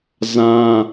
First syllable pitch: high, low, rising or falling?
high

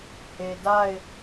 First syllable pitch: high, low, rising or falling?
low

